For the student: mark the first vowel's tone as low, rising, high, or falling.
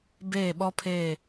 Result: falling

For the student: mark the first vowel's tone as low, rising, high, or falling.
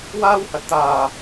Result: high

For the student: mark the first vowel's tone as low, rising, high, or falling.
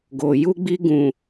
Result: low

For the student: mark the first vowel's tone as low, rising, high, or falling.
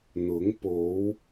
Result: rising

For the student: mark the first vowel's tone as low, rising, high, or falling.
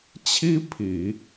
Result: high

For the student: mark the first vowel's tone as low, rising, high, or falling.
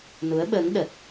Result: rising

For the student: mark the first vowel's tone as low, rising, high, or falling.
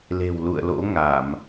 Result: low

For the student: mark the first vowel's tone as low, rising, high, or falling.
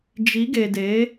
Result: rising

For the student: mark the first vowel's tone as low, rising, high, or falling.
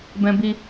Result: high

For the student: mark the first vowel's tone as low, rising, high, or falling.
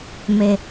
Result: low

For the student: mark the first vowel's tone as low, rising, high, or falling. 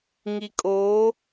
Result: low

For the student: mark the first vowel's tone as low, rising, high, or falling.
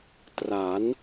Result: rising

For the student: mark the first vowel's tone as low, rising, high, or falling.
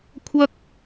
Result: high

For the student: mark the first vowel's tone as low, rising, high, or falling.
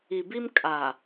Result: low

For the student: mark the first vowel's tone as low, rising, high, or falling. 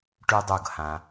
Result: high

